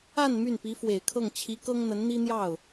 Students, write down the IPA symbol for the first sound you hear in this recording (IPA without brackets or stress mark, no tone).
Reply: a